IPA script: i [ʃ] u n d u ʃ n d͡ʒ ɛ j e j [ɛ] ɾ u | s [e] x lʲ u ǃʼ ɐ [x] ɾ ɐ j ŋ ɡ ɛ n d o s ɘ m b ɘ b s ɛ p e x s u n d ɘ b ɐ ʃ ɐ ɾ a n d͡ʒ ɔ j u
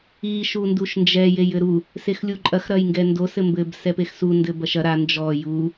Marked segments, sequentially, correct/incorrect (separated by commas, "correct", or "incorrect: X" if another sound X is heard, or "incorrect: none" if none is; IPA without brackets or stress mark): correct, incorrect: ɘ, correct, correct